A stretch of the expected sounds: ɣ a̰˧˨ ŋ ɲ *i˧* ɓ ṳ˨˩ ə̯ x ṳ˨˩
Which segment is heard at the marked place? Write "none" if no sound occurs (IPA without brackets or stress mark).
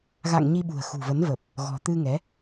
i˧